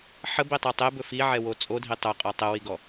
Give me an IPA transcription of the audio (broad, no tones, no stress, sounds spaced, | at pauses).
ħ ə b i tˤ ɛ tˤ e b ɵ f i ʕ ɛ w o t͡sʼ o dʱ i tˤ ɵ qʼ ɔ tˤ ə w i ɡ ɔ